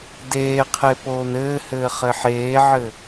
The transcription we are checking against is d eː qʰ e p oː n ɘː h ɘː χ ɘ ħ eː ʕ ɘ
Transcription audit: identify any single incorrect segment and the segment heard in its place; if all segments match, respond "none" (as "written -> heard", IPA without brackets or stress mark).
none